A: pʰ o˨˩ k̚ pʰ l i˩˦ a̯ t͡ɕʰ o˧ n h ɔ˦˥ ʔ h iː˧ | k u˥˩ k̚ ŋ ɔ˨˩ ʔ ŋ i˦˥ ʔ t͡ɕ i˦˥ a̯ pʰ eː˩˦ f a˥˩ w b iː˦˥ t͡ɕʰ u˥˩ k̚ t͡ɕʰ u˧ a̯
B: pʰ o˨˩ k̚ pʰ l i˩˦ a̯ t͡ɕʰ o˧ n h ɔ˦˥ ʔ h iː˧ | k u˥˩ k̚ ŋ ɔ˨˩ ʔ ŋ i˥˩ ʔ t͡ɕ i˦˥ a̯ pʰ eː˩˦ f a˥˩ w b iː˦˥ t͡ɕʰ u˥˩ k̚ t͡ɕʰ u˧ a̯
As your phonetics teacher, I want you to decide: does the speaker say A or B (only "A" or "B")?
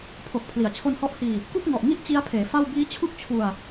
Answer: B